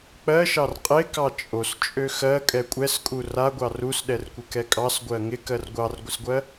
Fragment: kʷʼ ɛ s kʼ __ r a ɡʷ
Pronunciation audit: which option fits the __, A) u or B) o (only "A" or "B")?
A